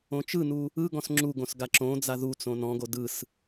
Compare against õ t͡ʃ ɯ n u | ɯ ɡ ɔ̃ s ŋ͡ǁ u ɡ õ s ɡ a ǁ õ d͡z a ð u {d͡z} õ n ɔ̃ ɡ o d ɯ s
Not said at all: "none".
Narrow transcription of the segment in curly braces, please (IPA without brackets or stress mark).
t͡s